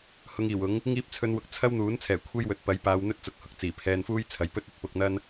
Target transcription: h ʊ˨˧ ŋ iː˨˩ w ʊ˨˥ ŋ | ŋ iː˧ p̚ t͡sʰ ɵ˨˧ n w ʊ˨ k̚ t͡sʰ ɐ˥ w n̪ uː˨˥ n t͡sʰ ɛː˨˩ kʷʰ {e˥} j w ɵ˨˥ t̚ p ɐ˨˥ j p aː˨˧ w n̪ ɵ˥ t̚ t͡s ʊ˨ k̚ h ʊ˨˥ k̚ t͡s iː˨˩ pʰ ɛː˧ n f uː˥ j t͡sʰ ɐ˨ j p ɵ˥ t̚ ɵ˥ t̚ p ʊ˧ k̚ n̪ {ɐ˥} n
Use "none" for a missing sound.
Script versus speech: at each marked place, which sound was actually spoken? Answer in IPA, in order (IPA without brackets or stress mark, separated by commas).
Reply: e˥, ɐ˥